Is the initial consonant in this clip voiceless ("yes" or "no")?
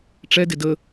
yes